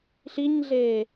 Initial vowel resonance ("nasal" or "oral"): oral